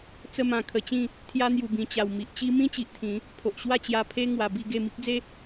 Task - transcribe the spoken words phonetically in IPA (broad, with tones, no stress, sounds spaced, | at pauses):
t͡s ə˧ m ã˨˩ kʰ ə˨˩ t͡ɕ ĩ˥˧ | t̪ʰ j a˧ n̪ j u˨˩ b ĩ˨˩ t͡ɕ a˨˩ w m i˨ ʔ t͡ɕ i˦ m ĩ˦ t͡ɕ i˨ ʔ t̪ʰ ĩ˨˦ | pʰ o˨ ʔ ɕ w a˥˧ t͡ɕ j a˧ pʰ e˦ ŋ w a˧ b i˥˧ ɡ e˥˧ m i˦ k̚ d͡z e˦